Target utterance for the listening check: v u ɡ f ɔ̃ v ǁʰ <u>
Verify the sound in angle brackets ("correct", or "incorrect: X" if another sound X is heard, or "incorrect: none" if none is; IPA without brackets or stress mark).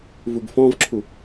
correct